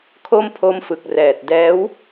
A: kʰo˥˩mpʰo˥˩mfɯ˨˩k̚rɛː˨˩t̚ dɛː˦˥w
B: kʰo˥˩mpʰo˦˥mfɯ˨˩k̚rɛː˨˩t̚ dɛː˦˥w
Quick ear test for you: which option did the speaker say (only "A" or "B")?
B